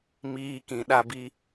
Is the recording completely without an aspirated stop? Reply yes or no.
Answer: yes